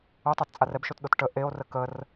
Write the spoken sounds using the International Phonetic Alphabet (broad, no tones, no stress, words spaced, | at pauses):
otˤat t͡sʼarɛbʃotɗot ʈə ʔeo̯rə kər